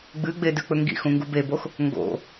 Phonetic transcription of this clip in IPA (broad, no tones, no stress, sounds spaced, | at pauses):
ɡ͡b ɨ ɡ͡b e d ʉ k͡p ɵ ŋ ɡ ḭ x ũ ŋ ɡ u b e b o x | ŋ ɡ o̰